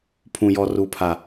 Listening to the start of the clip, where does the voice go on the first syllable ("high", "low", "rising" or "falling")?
low